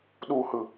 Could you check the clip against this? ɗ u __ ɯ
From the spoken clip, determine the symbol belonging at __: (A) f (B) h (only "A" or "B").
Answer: B